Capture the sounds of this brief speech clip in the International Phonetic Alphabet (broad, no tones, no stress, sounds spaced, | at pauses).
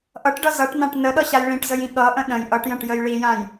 ʔ ʌ ʈ ɖ ʌ z ʌ ʈ n ã ʈ n ə ɗ ʌ ɕ a j ɭ ĩ ʈ z ə j ĩ ɠ ʌ ʔ ə̃ ɗ ə̃ j ʔ ʌ ʈ j ə̃ ʈ j ə j ɭ i j ã j